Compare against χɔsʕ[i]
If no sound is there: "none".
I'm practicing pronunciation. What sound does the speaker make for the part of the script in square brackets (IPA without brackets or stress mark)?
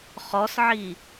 i